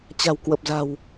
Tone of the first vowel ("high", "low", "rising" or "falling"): low